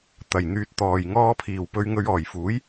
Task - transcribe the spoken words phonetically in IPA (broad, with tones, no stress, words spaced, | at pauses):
t̪ɐ˨˩jn̪yː˨t̚ t̪ɔː˨j ŋɔː˧pʰiː˨˩w pɵ˨˧ɥŋɵ˨˧ɥ ɔː˨˩jfuː˨˥j